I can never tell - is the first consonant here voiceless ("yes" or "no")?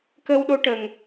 yes